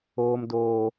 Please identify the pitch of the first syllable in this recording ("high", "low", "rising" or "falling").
low